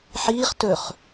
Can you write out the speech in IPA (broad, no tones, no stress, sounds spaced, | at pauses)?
ħ iː χ t ɵ χ